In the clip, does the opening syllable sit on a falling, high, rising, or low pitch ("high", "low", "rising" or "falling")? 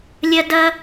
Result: high